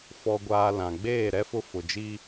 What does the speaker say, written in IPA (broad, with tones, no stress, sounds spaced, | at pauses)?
f ɔ˨ ɡʷ aː˨ l ã˨ ɡ͡b eː˦˨ ɾ ɛ˦ f ʊ˦ f ʊ˨ d͡ʒ i˦